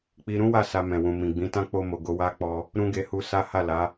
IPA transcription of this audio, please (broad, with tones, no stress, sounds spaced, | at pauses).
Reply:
k͡p i˦ ɾ ũ˦ w a˦˨ s a˧ m ɛ̃˨ w ũ˨ m ĩ˨ ɡ͡b ĩ˨˦ t ã˦ k͡p o˧ m o˨ ɡ o˨˦ w a˦ k͡p ɔ˧ | ɾ ũ˦ ɡ e˧ h u˧ s a˦ h a˦˨ l a˨˦